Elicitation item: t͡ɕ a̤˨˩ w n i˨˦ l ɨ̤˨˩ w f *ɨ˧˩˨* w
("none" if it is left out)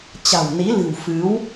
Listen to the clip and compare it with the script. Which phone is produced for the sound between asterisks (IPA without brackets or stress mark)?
ɨ˨˦